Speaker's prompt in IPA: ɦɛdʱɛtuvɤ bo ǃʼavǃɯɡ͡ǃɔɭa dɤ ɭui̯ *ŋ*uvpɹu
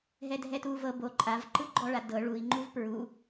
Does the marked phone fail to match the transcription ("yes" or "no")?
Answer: yes